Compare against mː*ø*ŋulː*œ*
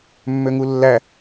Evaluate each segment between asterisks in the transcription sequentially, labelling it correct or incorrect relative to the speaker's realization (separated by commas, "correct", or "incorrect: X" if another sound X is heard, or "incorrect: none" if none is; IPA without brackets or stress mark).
correct, incorrect: æ